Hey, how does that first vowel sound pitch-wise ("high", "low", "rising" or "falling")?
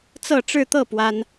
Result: falling